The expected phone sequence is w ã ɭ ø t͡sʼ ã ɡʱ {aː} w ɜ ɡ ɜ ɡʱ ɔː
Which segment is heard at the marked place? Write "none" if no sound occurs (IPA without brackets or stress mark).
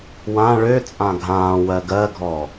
ãː